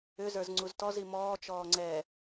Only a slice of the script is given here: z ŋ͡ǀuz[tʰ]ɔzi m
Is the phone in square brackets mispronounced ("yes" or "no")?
yes